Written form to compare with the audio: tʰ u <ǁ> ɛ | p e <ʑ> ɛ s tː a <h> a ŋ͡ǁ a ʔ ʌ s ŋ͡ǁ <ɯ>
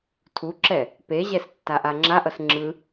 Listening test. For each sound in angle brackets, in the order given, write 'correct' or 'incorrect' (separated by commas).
correct, correct, incorrect, correct